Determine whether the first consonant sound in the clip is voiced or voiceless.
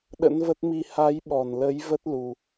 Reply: voiced